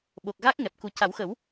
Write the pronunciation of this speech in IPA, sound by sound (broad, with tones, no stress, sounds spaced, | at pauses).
ɓ o˨˩ k̚ ɣ a˦˥ k̚ ŋ ɛ˨˩ p̚ k u˨˩ c a˨˩˦ w x ə˨˩˦ w